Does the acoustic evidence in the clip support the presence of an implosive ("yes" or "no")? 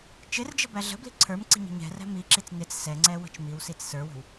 no